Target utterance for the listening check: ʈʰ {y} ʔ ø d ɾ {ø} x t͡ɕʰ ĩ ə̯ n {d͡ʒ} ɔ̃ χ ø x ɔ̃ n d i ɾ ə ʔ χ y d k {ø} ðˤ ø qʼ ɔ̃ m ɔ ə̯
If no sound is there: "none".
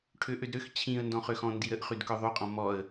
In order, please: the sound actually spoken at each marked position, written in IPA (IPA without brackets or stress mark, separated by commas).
ø, ø, d, œ